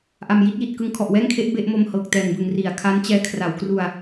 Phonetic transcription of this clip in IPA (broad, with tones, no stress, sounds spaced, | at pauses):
ʔ a˨˩ m j i˦˥ t̚ j i˨˩ t̚ k ɯ˦˥ ŋ kʰ ɔ˨˩ ʔ w ɛː˥˩ ŋ kʰ e˦˥ ʔ b e˥˩ ʔ m o˧ m h ɤː˨˩ k̚ t ɛː˨˩ ŋ b ɯ˨˩ ŋ r i˩˦ a̯ kʰ a˦˥ n t͡ɕ ɛː˧ kʰ r a˩˦ w k r u˧ a̯